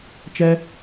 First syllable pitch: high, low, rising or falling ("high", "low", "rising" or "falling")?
high